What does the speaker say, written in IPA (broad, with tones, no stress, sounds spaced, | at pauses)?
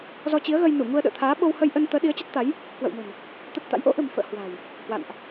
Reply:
z ɔ˧ t͡ɕ i˨˦ ə̯ ɣ ə˧ j n u˧˩ ŋ u˧ ə̯ ɗ ə̰ː˧˨ t̪ʰ aː˨˦ ɓ o˧ w h ə˧ j ʔ ə˧ n t̪ əː˨˦ ɗ i˨˦ ə̯ t͡ɕ ə˦˥ t̚ t̪ a˨˦ j | k w ə̰˧˨ w m ə̤˨˩ n | t̪ ə˦˥ t̚ t̪ a̰˧˥ j ʔ o̰˧˥ ʔ ə̤˨˩ m f ə̰ː˧˨ h w a̤˨˩ j | h w a̰˧˨ n ʔ